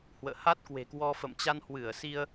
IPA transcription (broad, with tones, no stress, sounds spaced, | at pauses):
h w ə̰ː˧˨ h a˦˥ t̚ k w e̤˨˩ k w ɔ˧ f ə̰˧˨ m t͡ɕ a˧ n h w ɨ˧˩ ə̯ s i˧ ə̯